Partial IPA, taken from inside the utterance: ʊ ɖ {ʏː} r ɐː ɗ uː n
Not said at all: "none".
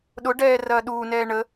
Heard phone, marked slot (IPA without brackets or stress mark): ɛː